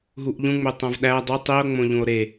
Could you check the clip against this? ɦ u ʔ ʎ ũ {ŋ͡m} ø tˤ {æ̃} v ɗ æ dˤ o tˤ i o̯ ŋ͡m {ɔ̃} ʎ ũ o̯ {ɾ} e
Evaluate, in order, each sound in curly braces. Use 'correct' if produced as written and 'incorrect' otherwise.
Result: correct, correct, incorrect: õ, correct

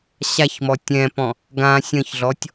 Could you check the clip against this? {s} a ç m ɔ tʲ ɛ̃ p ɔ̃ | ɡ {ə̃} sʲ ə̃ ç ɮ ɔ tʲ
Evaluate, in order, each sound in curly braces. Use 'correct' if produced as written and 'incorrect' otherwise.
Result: incorrect: ɕ, incorrect: ã

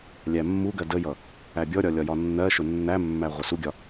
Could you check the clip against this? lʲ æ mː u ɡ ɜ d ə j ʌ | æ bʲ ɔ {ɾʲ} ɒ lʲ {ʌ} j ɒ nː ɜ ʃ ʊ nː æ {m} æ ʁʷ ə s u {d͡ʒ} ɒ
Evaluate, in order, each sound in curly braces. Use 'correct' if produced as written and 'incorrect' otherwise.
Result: correct, incorrect: ɒ, incorrect: mː, incorrect: ɡʲ

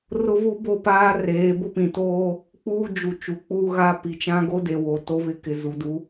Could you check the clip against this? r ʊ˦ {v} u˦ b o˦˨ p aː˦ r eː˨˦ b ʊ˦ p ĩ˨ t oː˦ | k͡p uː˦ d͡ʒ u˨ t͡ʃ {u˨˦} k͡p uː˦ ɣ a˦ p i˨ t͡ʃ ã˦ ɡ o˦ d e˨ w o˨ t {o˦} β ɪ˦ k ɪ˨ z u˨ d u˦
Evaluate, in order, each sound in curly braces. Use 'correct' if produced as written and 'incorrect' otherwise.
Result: correct, correct, correct

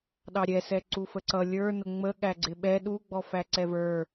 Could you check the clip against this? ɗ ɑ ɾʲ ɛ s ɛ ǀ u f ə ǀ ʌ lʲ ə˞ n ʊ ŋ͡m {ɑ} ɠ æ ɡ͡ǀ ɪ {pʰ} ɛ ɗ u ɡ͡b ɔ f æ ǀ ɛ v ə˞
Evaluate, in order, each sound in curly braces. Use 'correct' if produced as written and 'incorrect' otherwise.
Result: incorrect: ə, incorrect: ɓ

